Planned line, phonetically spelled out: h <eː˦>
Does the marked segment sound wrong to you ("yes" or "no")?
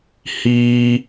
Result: yes